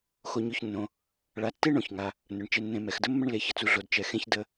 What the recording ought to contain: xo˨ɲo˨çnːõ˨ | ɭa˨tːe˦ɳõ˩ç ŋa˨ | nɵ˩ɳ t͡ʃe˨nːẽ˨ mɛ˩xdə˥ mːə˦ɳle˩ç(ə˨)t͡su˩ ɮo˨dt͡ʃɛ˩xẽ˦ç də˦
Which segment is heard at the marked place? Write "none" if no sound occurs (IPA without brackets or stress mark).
ə˨